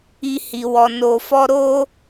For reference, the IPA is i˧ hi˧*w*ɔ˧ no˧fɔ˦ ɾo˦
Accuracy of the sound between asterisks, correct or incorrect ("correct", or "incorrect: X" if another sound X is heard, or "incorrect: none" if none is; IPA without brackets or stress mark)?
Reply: correct